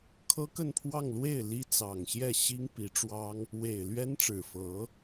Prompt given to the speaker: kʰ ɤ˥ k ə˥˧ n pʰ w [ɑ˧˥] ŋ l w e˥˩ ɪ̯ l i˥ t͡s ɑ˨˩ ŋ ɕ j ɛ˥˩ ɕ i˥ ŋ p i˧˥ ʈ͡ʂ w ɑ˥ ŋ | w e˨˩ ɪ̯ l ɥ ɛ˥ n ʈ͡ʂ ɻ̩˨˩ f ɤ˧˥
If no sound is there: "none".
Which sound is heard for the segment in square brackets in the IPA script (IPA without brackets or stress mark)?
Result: ɑ˥˧